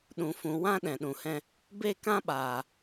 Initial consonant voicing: voiced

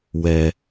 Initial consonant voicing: voiced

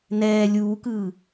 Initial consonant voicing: voiced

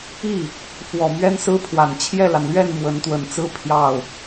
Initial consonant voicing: voiceless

